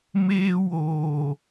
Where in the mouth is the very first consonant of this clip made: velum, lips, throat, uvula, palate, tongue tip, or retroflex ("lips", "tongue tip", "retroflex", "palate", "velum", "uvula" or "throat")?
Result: lips